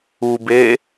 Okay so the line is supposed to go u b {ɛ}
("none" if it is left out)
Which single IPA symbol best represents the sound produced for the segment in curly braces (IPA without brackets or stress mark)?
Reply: e